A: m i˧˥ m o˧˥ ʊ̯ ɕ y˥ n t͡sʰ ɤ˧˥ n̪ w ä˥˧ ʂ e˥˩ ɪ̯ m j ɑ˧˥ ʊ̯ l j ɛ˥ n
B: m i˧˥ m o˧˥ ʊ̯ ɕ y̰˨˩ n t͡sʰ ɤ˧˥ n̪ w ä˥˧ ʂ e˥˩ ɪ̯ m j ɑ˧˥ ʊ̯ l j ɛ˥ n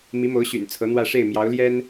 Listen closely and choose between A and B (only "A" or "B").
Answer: B